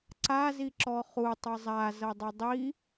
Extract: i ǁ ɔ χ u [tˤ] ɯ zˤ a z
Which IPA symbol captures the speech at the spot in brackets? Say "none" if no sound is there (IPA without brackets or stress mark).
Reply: tˤ